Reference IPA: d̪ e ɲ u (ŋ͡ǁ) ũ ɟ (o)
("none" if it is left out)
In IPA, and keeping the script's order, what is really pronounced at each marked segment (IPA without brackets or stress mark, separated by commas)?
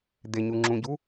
ŋ͡ǁ, u